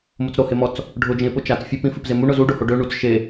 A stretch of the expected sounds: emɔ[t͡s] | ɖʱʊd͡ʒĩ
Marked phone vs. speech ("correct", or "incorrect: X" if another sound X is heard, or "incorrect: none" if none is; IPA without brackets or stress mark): correct